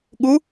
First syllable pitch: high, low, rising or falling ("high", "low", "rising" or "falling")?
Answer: rising